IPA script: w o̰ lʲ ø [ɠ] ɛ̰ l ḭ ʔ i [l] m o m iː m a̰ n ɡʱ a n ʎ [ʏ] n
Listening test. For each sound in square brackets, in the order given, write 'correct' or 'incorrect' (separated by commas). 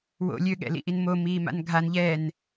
correct, incorrect, incorrect